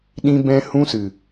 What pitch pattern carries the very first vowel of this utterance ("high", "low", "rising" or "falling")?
high